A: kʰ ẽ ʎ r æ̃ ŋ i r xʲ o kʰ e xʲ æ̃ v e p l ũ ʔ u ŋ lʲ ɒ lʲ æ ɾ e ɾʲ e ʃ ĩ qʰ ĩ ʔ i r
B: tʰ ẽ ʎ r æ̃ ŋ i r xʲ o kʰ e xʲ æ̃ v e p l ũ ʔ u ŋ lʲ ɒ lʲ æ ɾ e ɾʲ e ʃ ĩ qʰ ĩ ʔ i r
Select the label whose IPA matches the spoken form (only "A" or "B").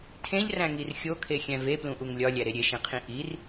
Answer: B